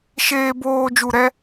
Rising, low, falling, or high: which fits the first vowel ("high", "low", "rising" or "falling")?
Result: high